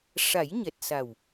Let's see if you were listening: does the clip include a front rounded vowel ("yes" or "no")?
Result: no